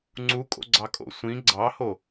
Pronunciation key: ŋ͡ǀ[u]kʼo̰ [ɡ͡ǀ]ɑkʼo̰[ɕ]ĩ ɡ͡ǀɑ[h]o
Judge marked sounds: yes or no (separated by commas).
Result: yes, yes, no, yes